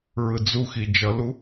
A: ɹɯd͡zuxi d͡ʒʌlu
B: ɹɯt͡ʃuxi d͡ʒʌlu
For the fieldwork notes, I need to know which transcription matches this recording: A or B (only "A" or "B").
A